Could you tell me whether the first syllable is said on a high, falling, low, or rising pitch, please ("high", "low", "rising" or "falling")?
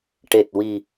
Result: low